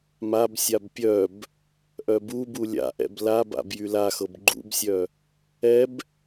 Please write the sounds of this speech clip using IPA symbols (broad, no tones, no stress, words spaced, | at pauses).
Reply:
mabsʲab pʲœb | ʔœbubu lʲa̰ʔɛ̰b laba̰b jylaxɤb ɡ͡ǃṵbsʲœ | ɛb